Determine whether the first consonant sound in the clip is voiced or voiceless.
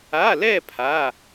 voiced